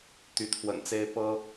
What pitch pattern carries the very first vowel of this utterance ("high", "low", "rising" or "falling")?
rising